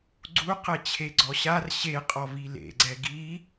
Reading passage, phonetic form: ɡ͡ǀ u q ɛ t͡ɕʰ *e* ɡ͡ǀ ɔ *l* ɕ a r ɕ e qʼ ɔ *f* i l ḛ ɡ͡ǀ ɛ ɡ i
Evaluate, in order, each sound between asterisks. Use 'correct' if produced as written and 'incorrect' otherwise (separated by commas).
correct, incorrect, incorrect